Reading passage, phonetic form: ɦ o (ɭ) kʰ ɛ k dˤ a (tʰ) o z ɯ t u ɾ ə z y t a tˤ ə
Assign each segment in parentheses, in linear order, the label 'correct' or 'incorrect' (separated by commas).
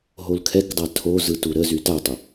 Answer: incorrect, correct